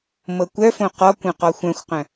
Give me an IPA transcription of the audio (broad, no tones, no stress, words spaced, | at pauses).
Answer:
mɤkʷœfõ qɔkʷœ̃ qɔxʷœ̃xʷqœ̃